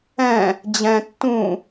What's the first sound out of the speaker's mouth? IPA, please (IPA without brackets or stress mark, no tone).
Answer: ɛ̃